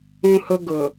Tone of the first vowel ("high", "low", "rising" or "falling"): high